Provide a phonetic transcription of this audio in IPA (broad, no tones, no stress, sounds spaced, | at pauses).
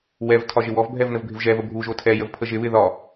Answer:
w ɛ v tʰ ɒ ʒ ɪ w ɔ v bʱ ɛ v n ə v bʱ ɪ v ʒ ɛ v ə bʱ u ʒ o tʰ ɛ j ə v pʰ ə ʒ ɪ β ɪ ð ɒ